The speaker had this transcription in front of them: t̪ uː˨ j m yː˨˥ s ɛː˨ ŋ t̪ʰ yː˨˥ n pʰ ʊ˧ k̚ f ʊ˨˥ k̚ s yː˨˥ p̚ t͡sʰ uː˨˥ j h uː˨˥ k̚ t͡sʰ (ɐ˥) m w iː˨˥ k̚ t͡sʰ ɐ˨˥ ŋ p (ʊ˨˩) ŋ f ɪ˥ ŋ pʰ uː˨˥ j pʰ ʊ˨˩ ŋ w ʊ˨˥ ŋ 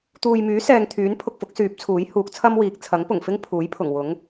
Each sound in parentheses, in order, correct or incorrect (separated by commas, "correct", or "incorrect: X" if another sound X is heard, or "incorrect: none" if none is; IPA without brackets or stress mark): correct, correct